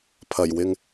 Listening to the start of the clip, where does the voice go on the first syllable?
low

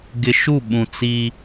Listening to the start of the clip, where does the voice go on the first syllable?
low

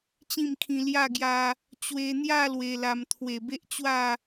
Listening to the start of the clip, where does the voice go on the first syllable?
falling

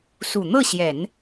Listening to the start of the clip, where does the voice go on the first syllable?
low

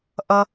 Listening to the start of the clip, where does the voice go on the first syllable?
high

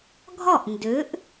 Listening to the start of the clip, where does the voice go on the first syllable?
falling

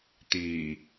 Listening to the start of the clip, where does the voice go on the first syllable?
low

